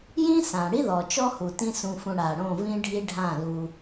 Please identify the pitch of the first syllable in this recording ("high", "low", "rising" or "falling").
high